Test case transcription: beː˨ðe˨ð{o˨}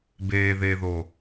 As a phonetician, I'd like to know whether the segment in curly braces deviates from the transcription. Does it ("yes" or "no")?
no